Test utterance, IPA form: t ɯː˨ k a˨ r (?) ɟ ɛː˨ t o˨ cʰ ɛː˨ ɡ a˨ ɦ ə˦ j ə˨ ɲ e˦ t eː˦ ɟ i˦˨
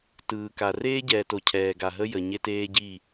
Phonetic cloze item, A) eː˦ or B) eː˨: A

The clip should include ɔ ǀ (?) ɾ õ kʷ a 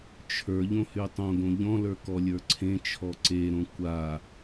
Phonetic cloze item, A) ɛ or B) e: B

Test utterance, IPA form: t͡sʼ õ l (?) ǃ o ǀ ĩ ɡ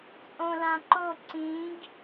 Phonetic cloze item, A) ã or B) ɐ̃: A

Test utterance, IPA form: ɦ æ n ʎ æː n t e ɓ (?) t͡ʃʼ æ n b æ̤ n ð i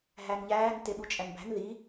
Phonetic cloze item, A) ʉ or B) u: B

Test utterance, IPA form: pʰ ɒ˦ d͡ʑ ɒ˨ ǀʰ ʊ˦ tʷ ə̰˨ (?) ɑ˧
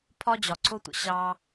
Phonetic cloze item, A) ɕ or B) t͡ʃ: A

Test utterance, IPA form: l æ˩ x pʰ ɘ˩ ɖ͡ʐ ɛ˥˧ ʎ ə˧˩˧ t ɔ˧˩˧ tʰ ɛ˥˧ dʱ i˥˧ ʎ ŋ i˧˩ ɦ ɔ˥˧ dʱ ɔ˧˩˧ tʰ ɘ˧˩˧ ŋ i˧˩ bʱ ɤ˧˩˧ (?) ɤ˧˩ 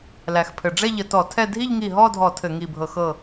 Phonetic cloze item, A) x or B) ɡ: A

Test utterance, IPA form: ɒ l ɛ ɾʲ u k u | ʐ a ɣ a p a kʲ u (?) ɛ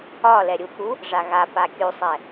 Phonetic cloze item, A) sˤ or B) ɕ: A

